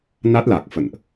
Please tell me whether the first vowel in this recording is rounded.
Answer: no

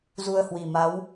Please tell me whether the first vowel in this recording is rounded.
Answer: yes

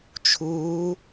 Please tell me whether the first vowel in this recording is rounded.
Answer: yes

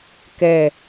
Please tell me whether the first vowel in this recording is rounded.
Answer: no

